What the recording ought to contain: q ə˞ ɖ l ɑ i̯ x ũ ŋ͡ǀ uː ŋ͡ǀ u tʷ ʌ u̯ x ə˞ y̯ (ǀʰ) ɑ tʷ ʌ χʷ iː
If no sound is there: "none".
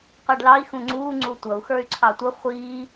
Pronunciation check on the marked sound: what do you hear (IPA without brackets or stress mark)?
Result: ǀʰ